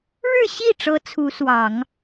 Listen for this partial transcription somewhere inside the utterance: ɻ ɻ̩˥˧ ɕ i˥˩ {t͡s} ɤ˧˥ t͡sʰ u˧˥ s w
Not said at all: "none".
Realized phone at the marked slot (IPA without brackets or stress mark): ʈ͡ʂ